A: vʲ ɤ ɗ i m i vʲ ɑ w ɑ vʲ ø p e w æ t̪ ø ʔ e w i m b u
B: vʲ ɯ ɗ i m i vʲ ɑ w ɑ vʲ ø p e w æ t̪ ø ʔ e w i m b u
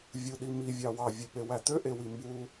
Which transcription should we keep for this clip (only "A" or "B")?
B